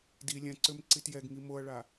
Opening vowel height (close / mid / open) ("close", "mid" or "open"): close